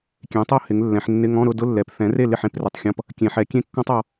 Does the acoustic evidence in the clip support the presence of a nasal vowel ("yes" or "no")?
yes